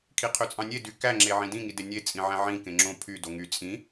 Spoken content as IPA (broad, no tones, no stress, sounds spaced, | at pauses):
kʰ i qʰ ø t͡sʼ ɑ̃ nʲ e d y k æ ŋ͡ǁ e ʕ ĩ d ĩ ŋ i d e nʲ e t͡sʼ ĩ ʕ æ̃ ʕ ĩ k ẽ ŋ͡ǁ õ pʰ y d o ŋ y t͡sʼ ĩ